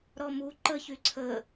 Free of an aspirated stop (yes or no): no